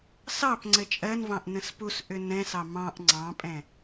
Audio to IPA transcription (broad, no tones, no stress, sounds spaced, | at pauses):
s ɑ p ŋ͡ǀ ɘ t͡ʃʼ ɜ n v ɑ̃ ʔ n ə̃ s p u s ʔ ʏ n ɛ̃ s ɑ m ɑ̃ ʔ ŋ͡ǀ ɑ̃ pʼ ɛ̃